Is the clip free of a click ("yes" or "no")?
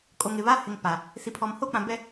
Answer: yes